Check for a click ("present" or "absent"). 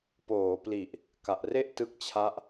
absent